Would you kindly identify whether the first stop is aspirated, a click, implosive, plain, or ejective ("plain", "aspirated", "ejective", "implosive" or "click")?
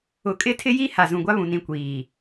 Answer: ejective